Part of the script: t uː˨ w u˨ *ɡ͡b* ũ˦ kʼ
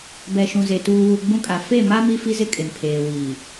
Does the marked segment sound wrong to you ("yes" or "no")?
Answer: no